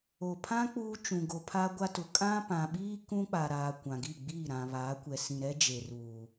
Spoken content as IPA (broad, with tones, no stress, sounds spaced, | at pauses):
o˨ pʰ ã˦ k͡p uː˦ t͡ʃ ũ˨ ɡ o˨ pʰ a˦ ɡʷ a˦ t ʊ˨ kʼ ã˦ p ã˨ ɓ iː˦ k ũ˦ k͡p a˨ ɾ aː˨ kʷ ã˨ ɡ i˦˨ ɡ͡b iː˦˨ ɾ ã˨ β aː˨˦ kʷ ɛ˨ s ĩ˨ ɾ ɛ˦ d͡ʒ e˨ r uː˨